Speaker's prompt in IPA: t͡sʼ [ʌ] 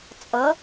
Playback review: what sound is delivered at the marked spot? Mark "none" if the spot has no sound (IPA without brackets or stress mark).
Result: ʌ